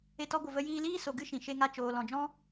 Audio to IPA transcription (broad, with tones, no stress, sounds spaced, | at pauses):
e˧ t ɔ˧ ɡʷ ə˨ v ə˧ j iː˧ l iː˦ s o˨ ɡ ɨ˧ ʃ ĩ˨ ʃ e˧ ŋ a˧ t͡ʃ oː˨ l ɔ̃˨ d͡ʒ ɔ̃˦